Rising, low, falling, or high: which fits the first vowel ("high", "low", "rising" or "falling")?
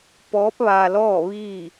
rising